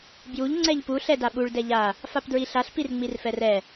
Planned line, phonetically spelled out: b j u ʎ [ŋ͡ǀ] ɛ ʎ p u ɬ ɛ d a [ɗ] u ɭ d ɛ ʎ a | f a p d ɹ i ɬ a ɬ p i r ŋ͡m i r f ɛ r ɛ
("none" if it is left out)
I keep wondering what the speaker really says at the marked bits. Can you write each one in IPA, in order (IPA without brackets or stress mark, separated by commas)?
ŋ͡ǀ, ɓ